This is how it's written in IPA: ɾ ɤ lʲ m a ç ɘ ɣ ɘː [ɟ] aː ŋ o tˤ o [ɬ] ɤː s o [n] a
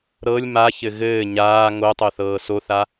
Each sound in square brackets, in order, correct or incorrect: incorrect, incorrect, incorrect

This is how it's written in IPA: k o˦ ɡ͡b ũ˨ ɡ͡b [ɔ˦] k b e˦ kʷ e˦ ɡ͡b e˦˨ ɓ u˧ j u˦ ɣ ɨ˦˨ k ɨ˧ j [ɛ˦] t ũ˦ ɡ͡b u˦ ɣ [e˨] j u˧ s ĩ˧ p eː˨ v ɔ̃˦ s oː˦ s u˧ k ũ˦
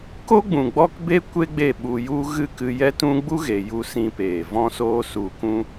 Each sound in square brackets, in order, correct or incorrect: correct, correct, correct

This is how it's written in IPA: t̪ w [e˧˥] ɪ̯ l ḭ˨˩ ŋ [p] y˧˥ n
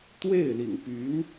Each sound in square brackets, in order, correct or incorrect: incorrect, correct

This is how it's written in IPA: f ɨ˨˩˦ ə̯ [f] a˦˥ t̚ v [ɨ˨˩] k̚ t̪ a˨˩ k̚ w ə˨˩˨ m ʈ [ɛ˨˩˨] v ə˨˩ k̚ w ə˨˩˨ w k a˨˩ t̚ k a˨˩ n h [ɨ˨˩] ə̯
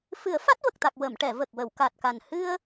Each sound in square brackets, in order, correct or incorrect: correct, incorrect, correct, incorrect

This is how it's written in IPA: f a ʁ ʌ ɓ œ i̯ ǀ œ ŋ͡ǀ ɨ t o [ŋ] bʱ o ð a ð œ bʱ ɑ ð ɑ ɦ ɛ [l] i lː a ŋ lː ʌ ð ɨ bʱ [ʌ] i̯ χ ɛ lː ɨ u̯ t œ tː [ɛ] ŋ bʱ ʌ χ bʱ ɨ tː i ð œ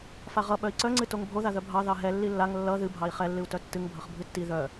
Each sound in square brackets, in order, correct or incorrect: correct, incorrect, incorrect, incorrect

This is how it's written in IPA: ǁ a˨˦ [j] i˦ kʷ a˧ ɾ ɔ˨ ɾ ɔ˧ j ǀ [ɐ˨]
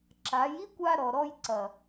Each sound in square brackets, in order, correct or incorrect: correct, correct

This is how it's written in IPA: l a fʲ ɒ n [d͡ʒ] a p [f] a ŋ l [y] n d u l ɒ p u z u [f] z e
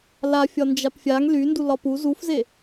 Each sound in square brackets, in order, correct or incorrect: correct, incorrect, correct, correct

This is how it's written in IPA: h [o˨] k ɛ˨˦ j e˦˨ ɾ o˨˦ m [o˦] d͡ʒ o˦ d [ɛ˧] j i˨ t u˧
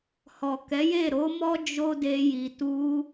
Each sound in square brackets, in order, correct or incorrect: incorrect, incorrect, incorrect

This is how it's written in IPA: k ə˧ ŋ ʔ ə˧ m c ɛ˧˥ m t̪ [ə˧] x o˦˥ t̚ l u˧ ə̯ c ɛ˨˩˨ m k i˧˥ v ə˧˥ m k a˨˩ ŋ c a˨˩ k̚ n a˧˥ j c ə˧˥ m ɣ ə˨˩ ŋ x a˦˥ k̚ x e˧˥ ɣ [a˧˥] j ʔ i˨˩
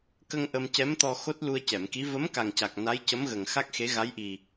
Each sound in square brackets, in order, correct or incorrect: incorrect, correct

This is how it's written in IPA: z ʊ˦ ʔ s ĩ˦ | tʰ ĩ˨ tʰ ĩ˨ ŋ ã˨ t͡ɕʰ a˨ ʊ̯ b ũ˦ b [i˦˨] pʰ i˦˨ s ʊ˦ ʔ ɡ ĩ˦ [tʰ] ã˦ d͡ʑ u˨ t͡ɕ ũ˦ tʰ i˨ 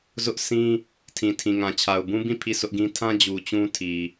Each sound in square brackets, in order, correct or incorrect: incorrect, correct

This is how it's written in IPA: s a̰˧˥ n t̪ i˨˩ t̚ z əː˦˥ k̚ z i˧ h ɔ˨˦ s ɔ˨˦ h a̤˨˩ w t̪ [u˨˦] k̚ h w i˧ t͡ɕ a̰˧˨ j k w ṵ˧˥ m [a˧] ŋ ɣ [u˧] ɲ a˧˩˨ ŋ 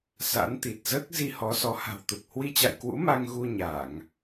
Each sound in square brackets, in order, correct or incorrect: incorrect, correct, correct

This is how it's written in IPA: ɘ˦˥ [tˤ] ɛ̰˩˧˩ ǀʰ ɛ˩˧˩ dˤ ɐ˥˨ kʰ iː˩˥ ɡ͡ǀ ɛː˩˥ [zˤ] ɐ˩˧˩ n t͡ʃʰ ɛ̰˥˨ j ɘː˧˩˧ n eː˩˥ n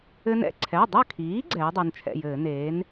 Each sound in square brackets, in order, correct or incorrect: incorrect, incorrect

